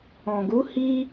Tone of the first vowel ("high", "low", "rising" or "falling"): low